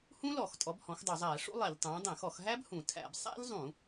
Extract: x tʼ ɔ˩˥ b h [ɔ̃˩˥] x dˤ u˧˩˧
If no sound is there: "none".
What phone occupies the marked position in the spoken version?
ɔ̃˩˥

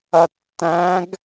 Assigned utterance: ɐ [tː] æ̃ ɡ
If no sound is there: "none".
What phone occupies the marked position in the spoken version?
tː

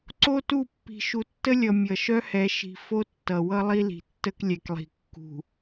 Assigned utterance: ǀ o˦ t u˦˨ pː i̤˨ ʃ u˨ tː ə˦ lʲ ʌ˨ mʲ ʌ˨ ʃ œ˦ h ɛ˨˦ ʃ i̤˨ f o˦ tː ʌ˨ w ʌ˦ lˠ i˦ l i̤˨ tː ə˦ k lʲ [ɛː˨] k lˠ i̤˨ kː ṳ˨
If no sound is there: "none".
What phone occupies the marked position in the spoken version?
ɛ˨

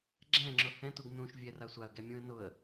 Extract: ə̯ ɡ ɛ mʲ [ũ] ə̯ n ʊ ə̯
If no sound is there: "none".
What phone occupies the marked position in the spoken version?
ũ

